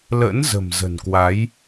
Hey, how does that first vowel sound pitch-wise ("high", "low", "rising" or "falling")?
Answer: rising